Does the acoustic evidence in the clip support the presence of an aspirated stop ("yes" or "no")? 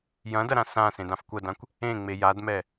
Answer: no